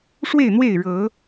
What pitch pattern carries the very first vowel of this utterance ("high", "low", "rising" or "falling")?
falling